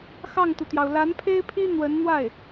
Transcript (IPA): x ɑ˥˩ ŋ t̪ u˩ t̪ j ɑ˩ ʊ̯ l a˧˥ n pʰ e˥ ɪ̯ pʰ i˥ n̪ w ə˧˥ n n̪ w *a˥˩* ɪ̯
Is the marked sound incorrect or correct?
correct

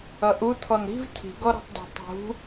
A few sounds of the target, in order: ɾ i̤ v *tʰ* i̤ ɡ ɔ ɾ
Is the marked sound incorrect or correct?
correct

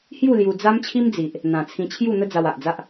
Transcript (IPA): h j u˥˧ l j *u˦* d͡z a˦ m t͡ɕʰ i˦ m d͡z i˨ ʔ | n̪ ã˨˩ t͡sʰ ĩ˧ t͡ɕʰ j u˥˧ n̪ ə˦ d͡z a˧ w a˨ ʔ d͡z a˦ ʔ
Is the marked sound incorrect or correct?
incorrect: u˧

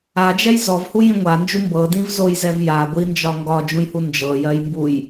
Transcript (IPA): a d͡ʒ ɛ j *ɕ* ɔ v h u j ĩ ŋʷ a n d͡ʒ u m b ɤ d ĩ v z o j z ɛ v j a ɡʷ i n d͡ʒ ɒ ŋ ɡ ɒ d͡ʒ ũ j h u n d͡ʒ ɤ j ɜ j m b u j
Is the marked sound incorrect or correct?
incorrect: z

